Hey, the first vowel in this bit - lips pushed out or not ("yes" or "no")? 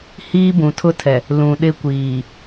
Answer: no